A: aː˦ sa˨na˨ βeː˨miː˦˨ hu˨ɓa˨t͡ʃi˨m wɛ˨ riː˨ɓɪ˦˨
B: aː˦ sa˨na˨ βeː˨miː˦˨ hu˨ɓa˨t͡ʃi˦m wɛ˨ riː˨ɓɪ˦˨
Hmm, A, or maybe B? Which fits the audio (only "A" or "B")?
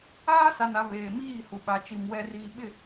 A